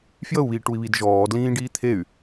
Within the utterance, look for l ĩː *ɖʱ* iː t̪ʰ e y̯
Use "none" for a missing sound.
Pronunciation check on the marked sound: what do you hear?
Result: ɖ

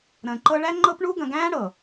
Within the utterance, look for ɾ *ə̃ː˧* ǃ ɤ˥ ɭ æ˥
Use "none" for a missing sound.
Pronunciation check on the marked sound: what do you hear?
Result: ə̃ː˧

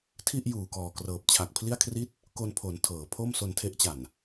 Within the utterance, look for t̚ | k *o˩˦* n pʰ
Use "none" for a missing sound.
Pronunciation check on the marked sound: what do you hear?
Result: o˧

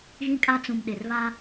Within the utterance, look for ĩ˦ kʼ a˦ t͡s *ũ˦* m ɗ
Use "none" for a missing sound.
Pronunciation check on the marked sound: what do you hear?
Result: ũ˨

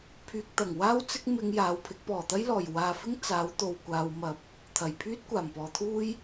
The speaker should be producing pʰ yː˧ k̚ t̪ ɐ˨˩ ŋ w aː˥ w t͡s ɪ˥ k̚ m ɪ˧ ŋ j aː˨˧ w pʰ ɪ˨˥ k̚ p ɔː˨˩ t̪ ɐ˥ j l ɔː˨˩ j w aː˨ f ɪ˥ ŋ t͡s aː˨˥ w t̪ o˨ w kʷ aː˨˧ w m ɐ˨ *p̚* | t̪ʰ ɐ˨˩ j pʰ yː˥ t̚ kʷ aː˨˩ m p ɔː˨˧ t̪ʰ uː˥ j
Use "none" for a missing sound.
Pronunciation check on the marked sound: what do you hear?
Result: p̚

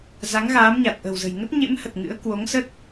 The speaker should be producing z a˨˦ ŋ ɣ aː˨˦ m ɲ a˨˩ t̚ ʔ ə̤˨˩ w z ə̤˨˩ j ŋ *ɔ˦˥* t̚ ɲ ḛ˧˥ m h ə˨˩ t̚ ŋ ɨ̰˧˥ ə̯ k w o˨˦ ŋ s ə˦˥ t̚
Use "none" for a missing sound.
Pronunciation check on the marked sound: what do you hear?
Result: ə˦˥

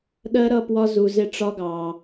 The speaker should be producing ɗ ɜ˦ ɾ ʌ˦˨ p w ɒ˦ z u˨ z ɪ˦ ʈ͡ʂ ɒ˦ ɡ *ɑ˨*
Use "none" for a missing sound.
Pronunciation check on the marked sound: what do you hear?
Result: ɑ˨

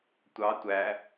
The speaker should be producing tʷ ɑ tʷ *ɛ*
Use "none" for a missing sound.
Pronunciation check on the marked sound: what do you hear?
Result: æ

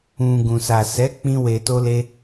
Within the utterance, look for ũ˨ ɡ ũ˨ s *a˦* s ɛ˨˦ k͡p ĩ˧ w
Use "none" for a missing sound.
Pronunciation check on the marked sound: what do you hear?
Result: a˨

